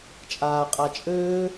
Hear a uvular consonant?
yes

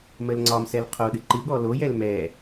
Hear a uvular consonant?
yes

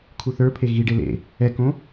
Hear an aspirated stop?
yes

